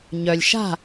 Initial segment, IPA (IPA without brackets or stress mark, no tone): ɲ